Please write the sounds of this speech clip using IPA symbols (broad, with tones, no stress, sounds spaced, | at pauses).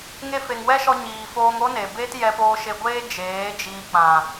ŋ e˧ f e˨ ŋ w ɛ˦ ʃ ɔ˧ ɲ iː˨ f oː˧ ŋ o˦ n e˨ b e˦ t j ɛ˧ p oː˧ ʃ e˧ ɡʷ eː˦ d͡ʒ eː˨˦ d͡ʒ iː˧ k͡p ã˨